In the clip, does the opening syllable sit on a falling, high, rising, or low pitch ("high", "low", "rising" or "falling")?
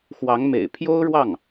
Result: rising